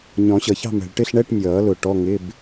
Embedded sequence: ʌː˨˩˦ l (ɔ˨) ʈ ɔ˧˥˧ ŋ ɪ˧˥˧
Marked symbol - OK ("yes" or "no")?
no